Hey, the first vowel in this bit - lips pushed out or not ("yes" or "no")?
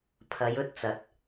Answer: no